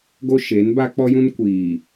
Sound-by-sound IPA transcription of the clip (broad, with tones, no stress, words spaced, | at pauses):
ɡo˦ʃeː˨˦n ba˦k͡pɔ˦jũ˦n kʷiː˨